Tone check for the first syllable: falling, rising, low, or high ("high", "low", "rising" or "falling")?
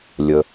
low